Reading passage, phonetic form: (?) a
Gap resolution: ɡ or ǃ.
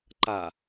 ǃ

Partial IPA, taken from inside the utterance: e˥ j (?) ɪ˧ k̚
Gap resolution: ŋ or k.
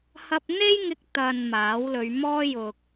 ŋ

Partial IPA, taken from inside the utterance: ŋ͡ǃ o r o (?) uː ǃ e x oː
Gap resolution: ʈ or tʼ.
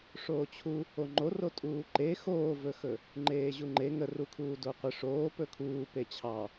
tʼ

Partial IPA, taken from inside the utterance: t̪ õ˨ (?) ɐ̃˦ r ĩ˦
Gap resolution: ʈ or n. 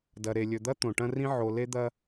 ʈ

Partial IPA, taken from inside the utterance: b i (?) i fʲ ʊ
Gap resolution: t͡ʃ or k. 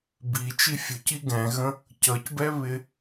t͡ʃ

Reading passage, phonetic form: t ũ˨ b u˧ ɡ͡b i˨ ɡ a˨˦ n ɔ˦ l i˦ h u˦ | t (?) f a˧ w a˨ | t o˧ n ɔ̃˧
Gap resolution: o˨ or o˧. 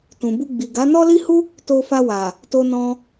o˧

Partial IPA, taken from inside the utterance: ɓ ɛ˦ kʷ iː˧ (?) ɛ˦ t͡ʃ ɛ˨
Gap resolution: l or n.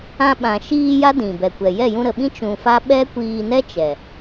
n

